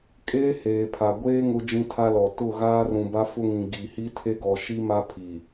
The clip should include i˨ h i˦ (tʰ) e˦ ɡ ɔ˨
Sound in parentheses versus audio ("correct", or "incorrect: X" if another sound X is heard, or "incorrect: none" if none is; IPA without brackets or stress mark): correct